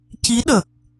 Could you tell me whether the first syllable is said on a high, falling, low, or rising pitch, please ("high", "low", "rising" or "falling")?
rising